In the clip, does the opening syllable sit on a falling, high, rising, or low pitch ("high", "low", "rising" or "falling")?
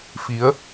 rising